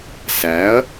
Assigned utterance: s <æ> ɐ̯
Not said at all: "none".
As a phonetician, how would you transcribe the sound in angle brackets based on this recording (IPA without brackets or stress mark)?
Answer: æ